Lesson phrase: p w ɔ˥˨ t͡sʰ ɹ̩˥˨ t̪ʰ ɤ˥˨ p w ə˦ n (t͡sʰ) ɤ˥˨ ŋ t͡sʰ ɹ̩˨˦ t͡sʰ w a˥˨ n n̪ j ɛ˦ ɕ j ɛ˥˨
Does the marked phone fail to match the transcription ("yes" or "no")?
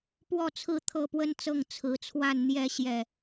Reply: yes